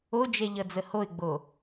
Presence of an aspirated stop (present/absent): absent